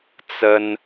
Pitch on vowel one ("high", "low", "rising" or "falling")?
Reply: high